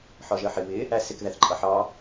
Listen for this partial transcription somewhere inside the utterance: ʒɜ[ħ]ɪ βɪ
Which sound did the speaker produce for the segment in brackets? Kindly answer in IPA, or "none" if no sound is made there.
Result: ħ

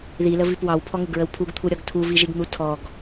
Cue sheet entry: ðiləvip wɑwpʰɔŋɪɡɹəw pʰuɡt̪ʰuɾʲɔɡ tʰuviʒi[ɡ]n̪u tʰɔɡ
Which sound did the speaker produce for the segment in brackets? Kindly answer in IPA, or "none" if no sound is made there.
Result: ɡ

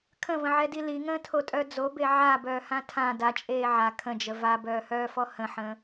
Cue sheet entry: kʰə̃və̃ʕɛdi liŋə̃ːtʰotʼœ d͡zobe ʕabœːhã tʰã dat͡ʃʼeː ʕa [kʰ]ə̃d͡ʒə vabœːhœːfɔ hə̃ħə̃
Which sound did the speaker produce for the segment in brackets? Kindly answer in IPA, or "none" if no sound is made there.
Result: kʰ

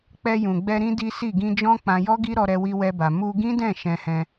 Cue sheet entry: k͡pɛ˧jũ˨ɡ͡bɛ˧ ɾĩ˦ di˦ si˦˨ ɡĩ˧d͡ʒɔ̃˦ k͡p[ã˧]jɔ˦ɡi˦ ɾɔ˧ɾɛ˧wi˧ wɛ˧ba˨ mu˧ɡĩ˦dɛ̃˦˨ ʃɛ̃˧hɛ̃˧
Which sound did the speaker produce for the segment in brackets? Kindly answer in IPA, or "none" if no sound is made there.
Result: ã˧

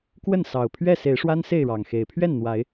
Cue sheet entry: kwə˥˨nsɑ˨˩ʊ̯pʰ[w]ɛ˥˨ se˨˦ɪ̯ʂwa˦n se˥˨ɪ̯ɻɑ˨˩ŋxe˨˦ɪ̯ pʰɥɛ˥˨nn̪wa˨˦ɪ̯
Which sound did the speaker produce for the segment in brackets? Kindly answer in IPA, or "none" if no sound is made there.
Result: ɥ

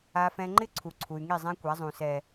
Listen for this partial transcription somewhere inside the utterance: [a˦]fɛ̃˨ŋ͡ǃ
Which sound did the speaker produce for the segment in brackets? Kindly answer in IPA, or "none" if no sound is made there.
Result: a˨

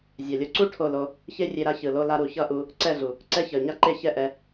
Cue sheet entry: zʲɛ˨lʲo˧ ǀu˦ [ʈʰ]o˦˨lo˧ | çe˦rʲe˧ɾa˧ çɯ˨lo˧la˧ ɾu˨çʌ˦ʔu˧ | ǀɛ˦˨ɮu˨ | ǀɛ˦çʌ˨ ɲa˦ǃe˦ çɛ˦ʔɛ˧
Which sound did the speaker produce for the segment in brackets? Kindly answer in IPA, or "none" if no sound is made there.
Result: ʈʰ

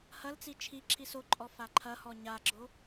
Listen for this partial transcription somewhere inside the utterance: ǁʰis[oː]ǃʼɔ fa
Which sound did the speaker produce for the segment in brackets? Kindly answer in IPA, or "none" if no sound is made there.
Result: o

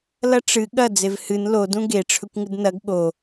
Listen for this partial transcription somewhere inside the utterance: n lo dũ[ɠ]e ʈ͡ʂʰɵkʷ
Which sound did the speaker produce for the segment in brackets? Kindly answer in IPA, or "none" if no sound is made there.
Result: ɡ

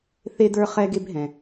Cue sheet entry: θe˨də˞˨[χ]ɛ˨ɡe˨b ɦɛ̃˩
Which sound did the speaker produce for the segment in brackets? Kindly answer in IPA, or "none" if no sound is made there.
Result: χ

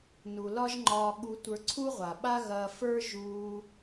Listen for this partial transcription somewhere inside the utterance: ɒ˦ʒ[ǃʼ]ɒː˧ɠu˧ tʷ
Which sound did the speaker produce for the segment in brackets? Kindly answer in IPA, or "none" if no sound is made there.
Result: ŋ͡ǃ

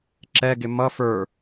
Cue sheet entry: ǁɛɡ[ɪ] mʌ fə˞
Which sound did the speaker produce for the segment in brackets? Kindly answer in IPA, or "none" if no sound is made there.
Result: ɪ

